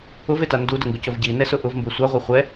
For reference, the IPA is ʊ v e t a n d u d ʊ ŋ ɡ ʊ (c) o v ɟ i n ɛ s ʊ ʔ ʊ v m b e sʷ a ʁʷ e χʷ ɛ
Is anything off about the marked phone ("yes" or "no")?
no